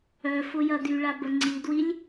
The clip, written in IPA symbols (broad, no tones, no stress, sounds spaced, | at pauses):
œ f ʊ j ɐ d y ɭ a b ə ŋ͡ǀ i d w i lʲ